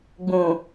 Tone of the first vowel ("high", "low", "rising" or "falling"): low